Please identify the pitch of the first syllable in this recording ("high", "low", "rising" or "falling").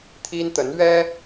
high